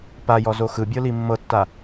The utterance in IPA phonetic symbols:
pajɔzo xɯbʲɤli mːɤtːa

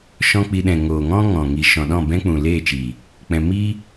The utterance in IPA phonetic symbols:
ʃɔ̃˦k͡pi˧ɗɛ̃˨ ŋoː˨ŋɔ̃˦ ŋɔ̃˨ ŋi˨ʃɔ̃˨ ɗɔ̃˦˨bɛ̃˦k͡pũ˨ leː˦˨t͡ʃiː˨ | k͡pɛ̃˧ mi˦

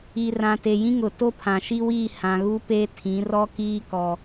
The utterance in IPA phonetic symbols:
i˨rã˨ te˨jĩ˦ŋʊ˨ to˦pʰã˨ʃi˦wiː˦˨ hã˨ɣu˦ pe˦ tʰĩ˨˦rɔ˦kiː˦ kɔ˦

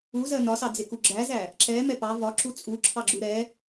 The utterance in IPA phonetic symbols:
uzɜ nɒsɑd͡zɪku ɡ͡ǁæzæ | ǁɛ mɛpɑ vɒ ǁut͡sʼuǁʰɑɡ͡ǁu ɾɛ

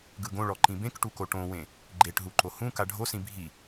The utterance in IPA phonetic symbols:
ɡɯɡõɭɔǃĩ bẽkʈuko ʈõwẽ | ɡ͡ǃeʈɦuǃo hũ kaɖʱosĩ bʱi

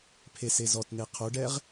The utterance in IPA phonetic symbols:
pʰesezɔtn̪e qʰoɖɛʁ

